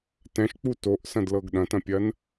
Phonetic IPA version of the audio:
tɛ̃ʃk͡pu toʔsɐ̃dlɤɡ ɗɐ̃tɐ̃pʲɐn

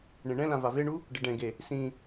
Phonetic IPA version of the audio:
ɳẽɳɛ̃lã vaveɳu | ɖɪɖɛ̃ɡe | sĩ

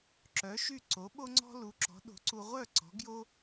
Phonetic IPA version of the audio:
ǁœ˩˥ʃy˥˩ ǀo˩˥ɓo˥ŋ͡ǀɔ̤˥ lu˩˥ǁɔ̤˩˥ɗo̤˩˥ǀu˧ ʁʷœ˥˩ ǀɔ̤˩˥ɡjo˥

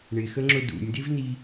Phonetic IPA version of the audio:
ɳɪxəŋ͡ǁʊ dṵnʲdɪvni

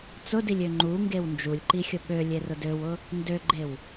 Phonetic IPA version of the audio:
t͡sʊdilʲø ŋ͡ǃuŋɡew nd͡ʒulʲǃixʲʊ ɓølʲerʊ døwʊ | ndøɡ͡ǃew

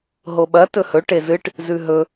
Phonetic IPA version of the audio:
ɦoɓɐ tɵhɵ ʈezɨʈ | zʉɦɵ

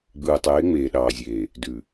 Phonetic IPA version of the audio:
ɡ͡bɯː˨tˤeː˨˦ ŋ͡meː˨ɗɑː˨zʲeː˨ | dʉ˨

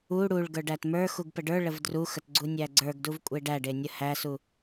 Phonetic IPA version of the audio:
u ɽuɭ ɡə˞ɖætmə˞xuɡ pəɖə˞ɭəv druxət ɡ͡ǀunʲæɡ͡ǀə˞ɡduv kʷʼeɖæɖe nʲəhæsu

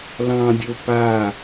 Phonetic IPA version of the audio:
lɑ̃dʲo pa

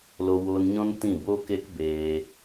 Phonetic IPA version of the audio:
lo˧woː˧nɲɔ̃˦n tĩ˦˨ boː˦ke˦k beː˧

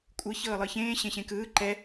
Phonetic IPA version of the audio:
kʷʼɯ çɤːlˠɯçẽː ɕẽɕẽkɯː ǃɛ

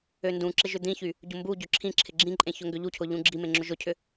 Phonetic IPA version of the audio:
øndũǁɪ ʒʏd̪ĩçy | ɟʊmbuɟʏ ǁʰĩǁʰɪ ɡ͡ǁĩǃʼẽ çʊŋɡʏʎucʰʊ ʎũɡ͡ǁimẽ ŋ͡ǁʊʒʊcʰʏ

